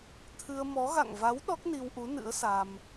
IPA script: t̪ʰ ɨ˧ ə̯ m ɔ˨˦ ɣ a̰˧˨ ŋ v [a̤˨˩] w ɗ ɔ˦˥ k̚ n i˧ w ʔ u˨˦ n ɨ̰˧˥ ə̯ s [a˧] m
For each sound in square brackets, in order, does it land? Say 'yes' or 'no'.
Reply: no, yes

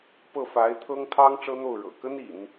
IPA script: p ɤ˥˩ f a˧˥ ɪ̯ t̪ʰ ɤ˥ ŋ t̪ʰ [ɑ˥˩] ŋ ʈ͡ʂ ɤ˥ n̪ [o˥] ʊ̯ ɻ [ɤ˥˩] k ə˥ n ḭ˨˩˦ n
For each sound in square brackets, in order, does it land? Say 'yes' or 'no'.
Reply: no, no, no

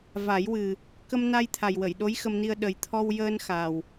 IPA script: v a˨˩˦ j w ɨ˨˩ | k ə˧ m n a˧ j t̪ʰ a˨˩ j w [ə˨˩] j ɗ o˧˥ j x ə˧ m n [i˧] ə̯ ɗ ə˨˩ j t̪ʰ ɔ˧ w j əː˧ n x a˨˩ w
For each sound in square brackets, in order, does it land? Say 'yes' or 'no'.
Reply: no, yes

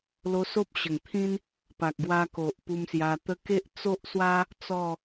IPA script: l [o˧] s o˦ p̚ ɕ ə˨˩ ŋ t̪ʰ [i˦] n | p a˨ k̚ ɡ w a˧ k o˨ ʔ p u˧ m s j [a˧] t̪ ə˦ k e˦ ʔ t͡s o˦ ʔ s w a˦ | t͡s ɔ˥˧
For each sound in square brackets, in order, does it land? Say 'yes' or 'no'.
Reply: yes, no, yes

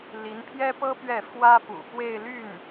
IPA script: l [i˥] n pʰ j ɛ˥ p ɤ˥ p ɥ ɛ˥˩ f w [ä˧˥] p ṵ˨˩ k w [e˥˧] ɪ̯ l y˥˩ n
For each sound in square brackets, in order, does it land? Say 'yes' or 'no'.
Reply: no, no, yes

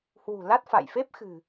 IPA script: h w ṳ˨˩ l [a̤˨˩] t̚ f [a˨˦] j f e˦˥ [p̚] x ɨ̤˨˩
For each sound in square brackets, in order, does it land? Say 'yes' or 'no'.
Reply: no, no, yes

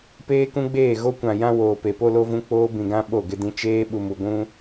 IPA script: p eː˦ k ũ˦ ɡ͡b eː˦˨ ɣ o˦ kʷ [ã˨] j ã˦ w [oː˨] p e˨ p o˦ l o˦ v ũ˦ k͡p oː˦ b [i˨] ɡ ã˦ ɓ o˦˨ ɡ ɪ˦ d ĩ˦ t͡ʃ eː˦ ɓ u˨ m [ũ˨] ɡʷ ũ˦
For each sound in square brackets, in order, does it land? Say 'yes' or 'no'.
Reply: yes, yes, no, no

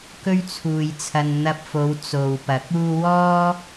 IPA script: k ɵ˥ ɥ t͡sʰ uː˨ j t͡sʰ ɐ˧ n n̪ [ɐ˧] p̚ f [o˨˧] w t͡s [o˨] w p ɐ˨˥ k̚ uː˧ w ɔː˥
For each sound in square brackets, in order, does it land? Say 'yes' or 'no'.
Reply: yes, yes, yes

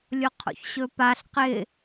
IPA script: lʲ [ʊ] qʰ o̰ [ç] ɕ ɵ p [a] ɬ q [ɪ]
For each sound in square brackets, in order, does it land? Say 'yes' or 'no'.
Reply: yes, yes, yes, yes

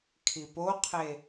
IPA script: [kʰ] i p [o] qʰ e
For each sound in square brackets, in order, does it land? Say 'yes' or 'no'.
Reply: yes, yes

